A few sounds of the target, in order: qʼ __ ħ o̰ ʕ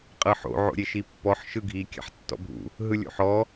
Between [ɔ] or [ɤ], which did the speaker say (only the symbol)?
ɤ